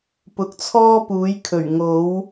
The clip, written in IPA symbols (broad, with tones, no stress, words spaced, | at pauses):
pʊ˨˥k̚t͡sʰɔː˥puː˨˥jkʰɵ˨˩ɥ ŋo˨˥w